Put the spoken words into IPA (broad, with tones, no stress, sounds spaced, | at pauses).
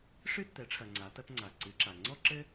ʂ ɨ˥ tː ɛ˩˥ ʈ͡ʂʰ ɐ˩ ŋ͡ǀ a˩˧ t ɐ˧ t ŋ͡ǀ a˩ ǀ ɨ˩˧ ǁ a˩ ŋ͡ǀ ɔ˥ ǁ ɘ˥